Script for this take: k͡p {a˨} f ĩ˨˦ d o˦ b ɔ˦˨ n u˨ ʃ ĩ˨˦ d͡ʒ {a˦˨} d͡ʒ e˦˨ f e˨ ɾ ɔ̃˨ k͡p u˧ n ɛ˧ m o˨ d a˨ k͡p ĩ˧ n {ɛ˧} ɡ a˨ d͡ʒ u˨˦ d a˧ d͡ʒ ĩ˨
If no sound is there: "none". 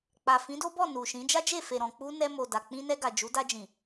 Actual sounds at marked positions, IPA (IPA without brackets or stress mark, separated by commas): a˨, a˦, ɛ˧